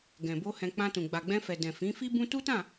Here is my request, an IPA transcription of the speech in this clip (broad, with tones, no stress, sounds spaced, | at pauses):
ɡ ɛ̃˨ b o˧ h ɛ̃˧ k͡p ã˧ t ũ˨ ɡ͡b a˨ ɡ͡b ɛ̃˧ f ɛ˨ d ɛ̃˨ f ĩ˨˦ f i˦ b ũ˦ t u˦ t ã˦˨